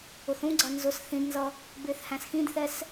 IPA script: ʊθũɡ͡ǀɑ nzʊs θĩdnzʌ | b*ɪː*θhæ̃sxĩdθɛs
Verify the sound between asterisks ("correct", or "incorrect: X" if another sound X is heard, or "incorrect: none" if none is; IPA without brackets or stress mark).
correct